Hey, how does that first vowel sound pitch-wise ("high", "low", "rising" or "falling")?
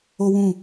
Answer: high